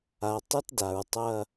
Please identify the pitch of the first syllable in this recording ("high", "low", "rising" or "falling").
low